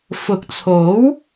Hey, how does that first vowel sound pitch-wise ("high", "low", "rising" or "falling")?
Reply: rising